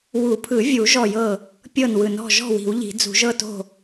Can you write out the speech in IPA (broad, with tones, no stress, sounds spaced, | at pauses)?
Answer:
w u˨˩˦ pʰ ɯ˨˩˦ vʲ u˨˩˦ ʒ ɔ˥˩ j ɤ˥˩ | pʲ ɤ˥˩ n w ɯ˨˩˦ n ɔ̤˥˩ ʒ ɔ̤˥˩ w i̤˨˩˦ w ʎ i̤˨˩˦ d͡z ṳ˨˩˦ ʒ ɤ˥˩ t o̤˥˩